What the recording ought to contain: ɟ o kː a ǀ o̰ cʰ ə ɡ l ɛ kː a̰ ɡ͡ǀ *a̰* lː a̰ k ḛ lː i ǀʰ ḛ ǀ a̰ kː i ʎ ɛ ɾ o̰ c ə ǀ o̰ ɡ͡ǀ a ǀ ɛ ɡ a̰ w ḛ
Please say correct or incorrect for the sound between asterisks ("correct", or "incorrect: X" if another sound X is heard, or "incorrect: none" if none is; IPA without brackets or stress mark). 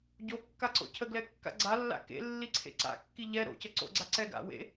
incorrect: a